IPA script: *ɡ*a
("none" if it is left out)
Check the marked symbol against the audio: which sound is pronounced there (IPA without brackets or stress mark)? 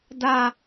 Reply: d